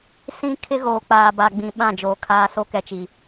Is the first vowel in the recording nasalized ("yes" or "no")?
yes